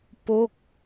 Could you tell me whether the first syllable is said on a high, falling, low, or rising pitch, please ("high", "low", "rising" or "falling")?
falling